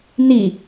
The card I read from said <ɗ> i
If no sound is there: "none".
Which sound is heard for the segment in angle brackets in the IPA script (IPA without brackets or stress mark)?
n̪